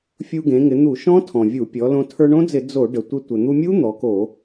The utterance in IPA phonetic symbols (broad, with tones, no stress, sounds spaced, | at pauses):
fʲ u˧ ɡ ẽ˩˧ ŋ ɪ˩˧ n̪ u˧˩˧ ʃ ɔ̃˦˥ tʰ ɔ̃˩ vʲ u˧˩˧ pʲ ɔ˩˧ l õ˧ tʰ ə˞˧ ɳ õ˦˥ d͡z ɪ˧˩˧ d͡z o˧˩˧ ɖ ə˩ tʷ ɪ˧ tʷ ɘ˩ n̪ u˧ mʲ u˦˥ n̪ ɔ˩˧ k o˧˩˧